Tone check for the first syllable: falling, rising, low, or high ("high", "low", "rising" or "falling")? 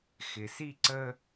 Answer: low